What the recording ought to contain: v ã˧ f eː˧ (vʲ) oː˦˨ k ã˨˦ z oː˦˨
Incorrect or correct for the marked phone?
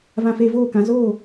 incorrect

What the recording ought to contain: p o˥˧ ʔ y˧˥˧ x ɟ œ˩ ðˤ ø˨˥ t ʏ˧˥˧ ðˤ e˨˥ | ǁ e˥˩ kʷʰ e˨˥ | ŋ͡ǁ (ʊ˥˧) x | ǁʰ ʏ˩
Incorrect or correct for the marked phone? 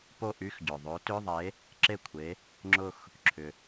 correct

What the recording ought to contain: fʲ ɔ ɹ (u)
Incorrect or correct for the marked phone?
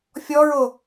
incorrect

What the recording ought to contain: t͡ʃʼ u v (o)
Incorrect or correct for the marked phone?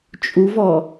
incorrect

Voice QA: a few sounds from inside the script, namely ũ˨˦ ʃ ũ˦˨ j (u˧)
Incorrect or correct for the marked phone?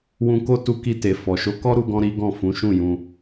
incorrect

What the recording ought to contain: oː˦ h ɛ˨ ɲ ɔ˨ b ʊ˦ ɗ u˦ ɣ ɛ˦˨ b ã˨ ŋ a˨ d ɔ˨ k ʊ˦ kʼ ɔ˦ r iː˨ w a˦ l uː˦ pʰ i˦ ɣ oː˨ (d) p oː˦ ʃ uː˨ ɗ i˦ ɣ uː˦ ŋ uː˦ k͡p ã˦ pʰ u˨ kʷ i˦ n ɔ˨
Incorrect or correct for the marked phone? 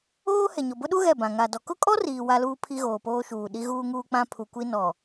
incorrect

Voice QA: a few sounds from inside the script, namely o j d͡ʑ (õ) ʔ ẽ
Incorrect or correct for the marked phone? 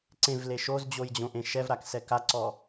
correct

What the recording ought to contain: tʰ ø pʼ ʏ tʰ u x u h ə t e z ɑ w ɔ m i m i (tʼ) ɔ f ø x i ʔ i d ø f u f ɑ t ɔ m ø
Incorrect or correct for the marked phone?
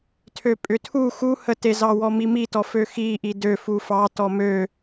incorrect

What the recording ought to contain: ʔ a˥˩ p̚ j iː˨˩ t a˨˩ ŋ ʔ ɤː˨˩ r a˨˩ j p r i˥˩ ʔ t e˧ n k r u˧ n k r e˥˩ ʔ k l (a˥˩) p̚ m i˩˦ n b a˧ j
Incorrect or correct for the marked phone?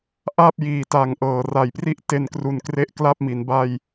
correct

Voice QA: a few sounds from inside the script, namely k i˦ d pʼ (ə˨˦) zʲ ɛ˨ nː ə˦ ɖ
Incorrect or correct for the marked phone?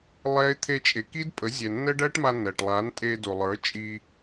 correct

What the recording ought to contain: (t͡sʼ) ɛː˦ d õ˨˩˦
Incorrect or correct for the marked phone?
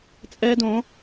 correct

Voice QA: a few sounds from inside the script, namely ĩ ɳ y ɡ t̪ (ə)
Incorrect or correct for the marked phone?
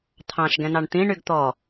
incorrect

